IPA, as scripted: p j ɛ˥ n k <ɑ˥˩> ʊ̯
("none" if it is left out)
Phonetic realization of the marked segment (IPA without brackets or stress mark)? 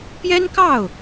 ɑ˥˩